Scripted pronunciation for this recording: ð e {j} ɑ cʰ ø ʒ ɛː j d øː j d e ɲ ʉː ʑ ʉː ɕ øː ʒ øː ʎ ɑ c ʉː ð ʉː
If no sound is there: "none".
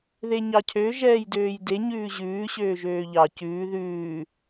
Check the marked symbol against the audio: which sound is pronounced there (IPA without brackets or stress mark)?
ɲ